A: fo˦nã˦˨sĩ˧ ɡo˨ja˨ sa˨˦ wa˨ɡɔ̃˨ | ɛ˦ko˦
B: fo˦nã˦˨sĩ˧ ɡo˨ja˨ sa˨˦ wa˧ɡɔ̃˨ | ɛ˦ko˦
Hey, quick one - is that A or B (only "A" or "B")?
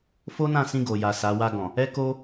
B